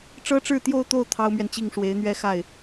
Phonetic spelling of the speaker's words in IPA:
ʈ͡ʂɤ˥ʈ͡ʂɻ̩˥˧t̪jo˥˧ʊ̯t̪o˥˩ʊ̯ t̪ʰɑ˥ʊ̯mɥɛ˨nt͡ɕi˥˩ŋ ʂwe˧˥ɪ̯ n̪ɥɛ˥xa˥˩ɪ̯

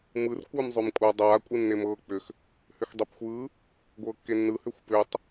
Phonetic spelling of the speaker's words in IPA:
mɯr kʷɯːmzˤʏːmkʷʼa dˤaː kʷʼɯnːemɤː k͡pʏx | hʏxdˤepxʷɯː | ɡʷɤːkːenːɯ hʏːxʷpʏːtˤ

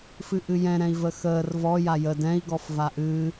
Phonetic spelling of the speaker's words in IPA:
fɨʔɨjɛ̃ ɾɛ̃i̯vəxəːr vɔ jajə dɛ̃i̯ ɡɔfvaʔɨː

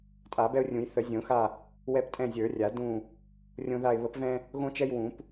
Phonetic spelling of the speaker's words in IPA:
tʼa˨˩˦bɛ˦ʊ̯rʲũ˨˩˦j θə˨˩˦zʲõ˨˩˦xa˦˨ | wɛ˦p tʼɛ̃˦˨zʲə˞˨˩˦ rʲa˨˩˦ dũ˦˨ | rʲõ˦ða˦˨ɪ̯ βə˨˩˦pvɛ̃˦ | ɣõ˦t͡ʃɛ˦j wũ˨˩˦p

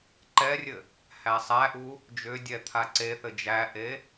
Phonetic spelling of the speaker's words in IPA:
ǃɛrʲɘ | hæsˤæʔu | d͡ʒʏdʲɛ t̪ʰaǀeθɘ d͡ʒæʔe

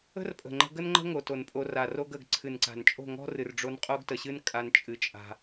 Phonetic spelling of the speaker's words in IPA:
ə̤˦rpʼə̤˨ŋ͡ǃə̤˧ ɡə˦nŋ͡ǃə̤˦ ŋo˨to˨n pʼo˧ra˨ ro˦ɡ ə˨ɡ ǀʰɨ˨nǀa̤˨nt͡ʃʼo̤˦˨ŋɔ̤˦ rɨ˨rɖ͡ʐo˧n qʼo˦ɡtə˨ɕɨ˦n kʼa˦nt͡ʃʼɨ˧ t͡ʃʼa̤˧

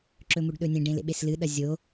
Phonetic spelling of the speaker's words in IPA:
ǁɵmuɖɗɵnʲẽ ɖẽlḛɓeslɨ ɗɐzʲo

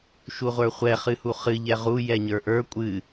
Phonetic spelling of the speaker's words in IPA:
ʃuʁʷə˞χʷɛ χɨhuχɨ ʎɛʁu jɛɲə˞ʔə˞ kʷʼɨ

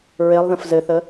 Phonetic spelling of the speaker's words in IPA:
ɹelˠ ðə̃fzɘθə

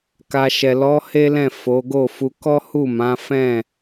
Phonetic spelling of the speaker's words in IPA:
ka˧ ʃɛ˨ lɔ˨˦ he˦lɛ̃˦˨ fo˨˦ ɡo˦˨fu˧ kɔ˦ hu˦˨mã˨˦fɛ̃˦˨

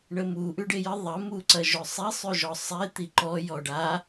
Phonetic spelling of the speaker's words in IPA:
ɳəmu ʔʉɖejə ðˤɐ muǀɐʒɵsˤi sˤʉʒɔsˤe t̪iǃɔ jɔɖa

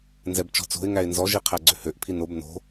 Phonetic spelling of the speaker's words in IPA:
nzɛbt͡ʃɔ̤t͡so̤ɪ̯ ŋæɪ̯nzɔ ʒiqʰæɡ͡ǀøhøʔ pʰinob no̤

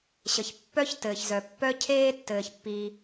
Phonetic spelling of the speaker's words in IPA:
ɕə˩çpːœ˥ç tɘː˩çzœ˩ pːœ˥ cʰeː˥tːɘː˩çpːiː˩

